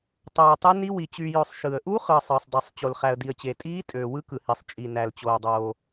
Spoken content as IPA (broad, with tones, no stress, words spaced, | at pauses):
tˤoː˨ə̯tˤe˦˥ni˦˥wi˨ t͡ɕy˨jø˨sˤ ʃɯ˨ə̯ ʔu˦˥χɯ˨ə̯ sˤɯː˨sˤdˤi˨sˤ t͡ɕo˨lχæ˨ə̯di˨ə̯t͡ɕe˨ tʼiː˦˥tʼøː˨ wɯ˦˥kɯ˨hi˨sˤ t͡ʃʼi˨næ˨l t͡ɕoː˨dˤoː˨